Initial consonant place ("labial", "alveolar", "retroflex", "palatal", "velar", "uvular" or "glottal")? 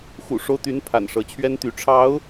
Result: velar